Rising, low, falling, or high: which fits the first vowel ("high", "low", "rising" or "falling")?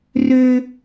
high